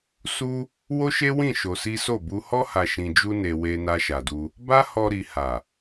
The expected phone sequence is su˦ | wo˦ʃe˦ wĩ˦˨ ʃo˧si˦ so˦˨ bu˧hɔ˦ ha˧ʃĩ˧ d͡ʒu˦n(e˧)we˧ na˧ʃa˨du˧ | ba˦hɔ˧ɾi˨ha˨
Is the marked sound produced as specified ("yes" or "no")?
yes